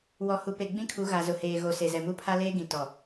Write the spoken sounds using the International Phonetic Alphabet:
w ɔ˨ h u˨ p e˨ ɡ͡b ĩ˦ kʰ u˨˦ ɣ a˨ z ʊ˨ h eː˨ ɣ o˨ s e˨ z ɛ˨ m u˦ pʰ a˦ l eː˦ ɡ ĩ˨ t ɔ˨

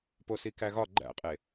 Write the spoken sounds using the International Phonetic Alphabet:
p o s i k æ ɣ ɒ ɡ͡ǃ æ̰ qʼ e

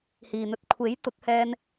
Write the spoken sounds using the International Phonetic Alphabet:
h iː˨ n̪ ɵ˧ t̚ kʷʰ e˨˥ j t̪ ʊ˨˥ k̚ h ɛː˧ n

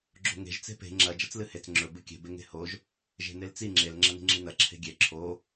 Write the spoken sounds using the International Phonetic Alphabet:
ɡ͡ǁ o̤ ŋ e̤ ʒ t͡s e̤ p e̤ ŋ͡ǁ ɐ d͡ʒ ɐ t͡s l ɨ h e t͡s ŋ͡ǁ ɵ b ɨ kʲ e̤ b e ŋ e̤ h o ʒ | ʒ e̤ n e l t͡s i ŋ͡ǁ e l ŋ͡ǁ ɐ n i̤ ŋ͡ǁ i n ɐ ǁʰ e̤ ɡʲ e ǁʰ o

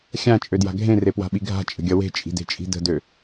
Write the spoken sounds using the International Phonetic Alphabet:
xʲ ã t͡ʃʼ ø d j a̤ ɡʱ ẽ r e p w a̤ ɓ i ɡʱ a̤ t͡ʃʼ ə̤ ɡʲ ʌ w e̤ t͡ʃʼ i̤ d e̤ t͡ʃʼ i̤ d ə̤ d ø

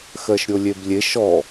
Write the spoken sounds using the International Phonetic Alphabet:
x ɜ ʃ ɾʲ o lʲ e b lʲ e ʃ ɔ

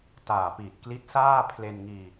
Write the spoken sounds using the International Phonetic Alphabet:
t aː˨˩ p i˨˩ t̚ k l i˦˥ t̚ s aː˥˩ pʰ l e˧ n ŋ iː˧

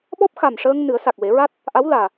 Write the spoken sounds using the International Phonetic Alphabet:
ɓ ɔ˦˥ p̚ x a˨˩ m ʂ əː˧ ŋ n ɨ˨˩˦ ə̯ s a˨˩ k̚ w e˨˩˦ ɹ a˦˥ t̚ | ʔ a˧˥ w l aː˨˩

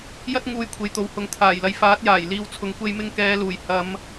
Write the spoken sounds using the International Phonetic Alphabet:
j ɐ˥ t̚ ŋ uː˧ j kʷʰ e˨ j t̪ o˨ w h ʊ˨˥ ŋ t̪ʰ aː˨˩ j l ɐ˨ j f aː˨˥ t̚ j aː˨˩ j l iː˨ w t͡sʰ ʊ˨ ŋ kʷ e˧ j m ɪ˧ ŋ k ɛː˨˧ l uː˨˩ j h ɐ˨˧ m

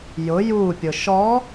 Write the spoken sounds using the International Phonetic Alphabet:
j ʊ j u pʲ ʊ ʃ ɔ

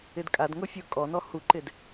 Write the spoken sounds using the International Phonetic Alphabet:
ɪ d kʼ a d ŋ ʊ fʲ ʊ kʼ ɔ n ɔ h u ǃ ɪ d

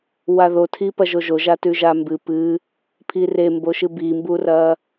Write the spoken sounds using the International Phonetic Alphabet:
w a ð o tʰ i p ɐ ʒ o ʒ o ʒ a t ʉ ʒ a m b ɨ p ɨ | pʰ i r e m b o ʃ ɨ b i m b u r ɐ

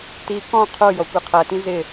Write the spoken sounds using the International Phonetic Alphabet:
t i k ɔ̃ qʰ o j ɔ kʷ i qʰ ɜ t ĩ z ɪ

